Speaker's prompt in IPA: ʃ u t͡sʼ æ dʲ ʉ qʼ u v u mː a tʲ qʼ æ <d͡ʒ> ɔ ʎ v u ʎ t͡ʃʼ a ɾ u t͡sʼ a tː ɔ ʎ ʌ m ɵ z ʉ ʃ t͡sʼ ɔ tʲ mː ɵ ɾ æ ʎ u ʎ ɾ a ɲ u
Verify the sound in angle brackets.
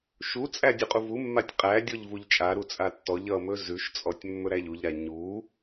incorrect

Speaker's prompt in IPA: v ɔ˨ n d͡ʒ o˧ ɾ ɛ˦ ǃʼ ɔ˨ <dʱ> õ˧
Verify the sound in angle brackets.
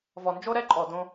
incorrect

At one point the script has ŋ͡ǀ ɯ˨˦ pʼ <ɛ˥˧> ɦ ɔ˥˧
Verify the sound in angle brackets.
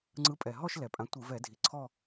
incorrect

